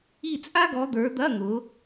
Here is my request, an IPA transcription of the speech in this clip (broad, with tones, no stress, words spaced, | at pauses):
i˦˨t͡sʼa˥ɡɔ˨˦d̪ə˞˨˦ d̪ɐ˧˥˧ŋʊ˨˦